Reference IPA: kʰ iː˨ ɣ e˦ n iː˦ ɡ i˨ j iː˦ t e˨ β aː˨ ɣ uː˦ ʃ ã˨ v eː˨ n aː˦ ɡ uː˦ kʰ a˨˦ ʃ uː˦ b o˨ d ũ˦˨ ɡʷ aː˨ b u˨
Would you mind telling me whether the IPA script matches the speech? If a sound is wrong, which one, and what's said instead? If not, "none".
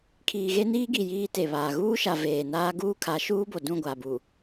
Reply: ã˨ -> a˨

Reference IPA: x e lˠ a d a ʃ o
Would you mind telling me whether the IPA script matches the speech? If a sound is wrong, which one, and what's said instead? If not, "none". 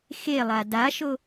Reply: none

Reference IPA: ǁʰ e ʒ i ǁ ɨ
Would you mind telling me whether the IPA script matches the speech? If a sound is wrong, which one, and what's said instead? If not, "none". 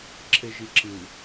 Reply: none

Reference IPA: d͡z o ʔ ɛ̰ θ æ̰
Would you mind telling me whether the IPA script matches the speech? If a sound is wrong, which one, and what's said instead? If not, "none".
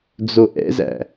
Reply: θ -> z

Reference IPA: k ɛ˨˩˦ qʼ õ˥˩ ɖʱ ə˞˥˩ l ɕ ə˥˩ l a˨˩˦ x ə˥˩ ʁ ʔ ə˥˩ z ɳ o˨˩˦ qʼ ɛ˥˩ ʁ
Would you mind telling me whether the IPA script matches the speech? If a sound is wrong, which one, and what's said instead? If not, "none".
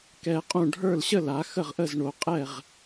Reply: none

